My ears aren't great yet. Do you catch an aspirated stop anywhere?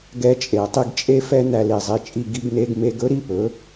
no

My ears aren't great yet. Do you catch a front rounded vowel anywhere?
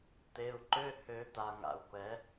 yes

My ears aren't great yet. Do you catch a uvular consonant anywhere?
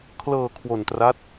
no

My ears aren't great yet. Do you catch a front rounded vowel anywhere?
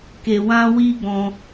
no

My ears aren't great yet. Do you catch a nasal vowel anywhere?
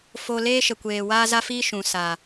yes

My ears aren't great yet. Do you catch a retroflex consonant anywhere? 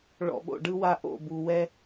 yes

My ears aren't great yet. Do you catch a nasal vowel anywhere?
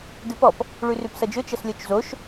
no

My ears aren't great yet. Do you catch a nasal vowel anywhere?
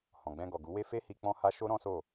yes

